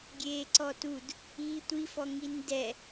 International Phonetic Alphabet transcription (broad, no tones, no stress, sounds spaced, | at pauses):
ɡʲ eː ǀ ɔ t u d | i tʷ i f ɔ ŋ i n d ɛ